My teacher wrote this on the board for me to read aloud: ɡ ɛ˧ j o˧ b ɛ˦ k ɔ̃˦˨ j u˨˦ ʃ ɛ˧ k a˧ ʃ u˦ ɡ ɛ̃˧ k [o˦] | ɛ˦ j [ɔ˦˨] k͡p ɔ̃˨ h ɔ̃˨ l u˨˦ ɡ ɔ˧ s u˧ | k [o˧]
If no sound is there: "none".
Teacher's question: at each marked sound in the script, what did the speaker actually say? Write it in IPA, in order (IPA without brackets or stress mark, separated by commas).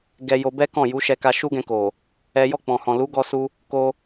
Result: o˨, ɔ˦˨, o˧